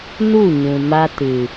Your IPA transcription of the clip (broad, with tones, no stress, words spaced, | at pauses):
nu˦˨ɲũ˨ma˧ tɨ˨